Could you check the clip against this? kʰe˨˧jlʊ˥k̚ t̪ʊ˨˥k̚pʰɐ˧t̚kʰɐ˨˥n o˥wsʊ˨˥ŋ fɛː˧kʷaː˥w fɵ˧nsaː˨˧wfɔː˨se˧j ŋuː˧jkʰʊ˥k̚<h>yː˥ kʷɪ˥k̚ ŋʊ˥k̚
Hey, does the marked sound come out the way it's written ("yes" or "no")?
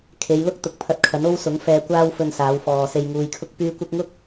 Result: no